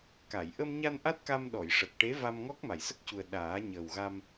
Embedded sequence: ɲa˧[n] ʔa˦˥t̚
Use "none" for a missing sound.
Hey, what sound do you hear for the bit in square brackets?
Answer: n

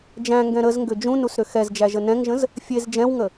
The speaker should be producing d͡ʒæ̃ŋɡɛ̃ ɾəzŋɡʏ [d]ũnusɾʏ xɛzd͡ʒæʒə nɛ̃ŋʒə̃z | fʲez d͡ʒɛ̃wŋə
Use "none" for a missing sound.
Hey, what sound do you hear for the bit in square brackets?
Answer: d͡ʒ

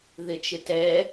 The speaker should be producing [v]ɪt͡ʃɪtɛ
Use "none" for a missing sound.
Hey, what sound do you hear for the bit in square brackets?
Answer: ð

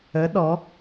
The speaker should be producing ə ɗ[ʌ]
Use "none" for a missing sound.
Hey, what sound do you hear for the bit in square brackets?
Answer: ɔ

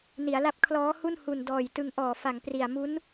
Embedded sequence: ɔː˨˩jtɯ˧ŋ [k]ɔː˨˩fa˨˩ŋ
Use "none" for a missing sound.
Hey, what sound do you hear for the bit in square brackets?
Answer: ʔ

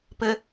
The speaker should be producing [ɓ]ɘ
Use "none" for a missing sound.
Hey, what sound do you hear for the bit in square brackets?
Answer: p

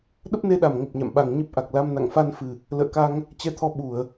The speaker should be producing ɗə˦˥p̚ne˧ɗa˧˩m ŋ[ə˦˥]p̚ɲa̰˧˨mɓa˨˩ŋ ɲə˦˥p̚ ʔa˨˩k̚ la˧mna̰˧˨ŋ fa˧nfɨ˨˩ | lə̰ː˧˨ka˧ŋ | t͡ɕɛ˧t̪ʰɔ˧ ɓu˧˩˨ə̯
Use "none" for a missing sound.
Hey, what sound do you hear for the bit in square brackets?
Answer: ə˨˩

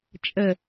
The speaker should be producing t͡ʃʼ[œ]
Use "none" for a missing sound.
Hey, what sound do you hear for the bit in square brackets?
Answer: ə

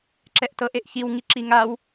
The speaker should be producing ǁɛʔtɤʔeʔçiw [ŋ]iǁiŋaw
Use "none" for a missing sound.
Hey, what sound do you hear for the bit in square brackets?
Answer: ŋ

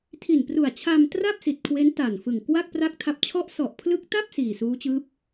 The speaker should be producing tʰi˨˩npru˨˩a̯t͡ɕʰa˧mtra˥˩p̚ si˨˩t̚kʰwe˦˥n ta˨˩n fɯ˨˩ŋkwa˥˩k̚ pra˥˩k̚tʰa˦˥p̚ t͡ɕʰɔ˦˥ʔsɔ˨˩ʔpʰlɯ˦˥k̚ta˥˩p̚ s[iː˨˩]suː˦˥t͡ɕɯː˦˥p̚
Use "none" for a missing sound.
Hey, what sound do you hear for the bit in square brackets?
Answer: iː˨˩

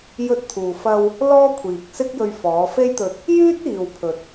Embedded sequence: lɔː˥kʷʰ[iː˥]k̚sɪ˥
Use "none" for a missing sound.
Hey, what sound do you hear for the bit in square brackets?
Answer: iː˨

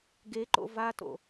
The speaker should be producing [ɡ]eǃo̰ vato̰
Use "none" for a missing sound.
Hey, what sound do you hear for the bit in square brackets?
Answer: ɡ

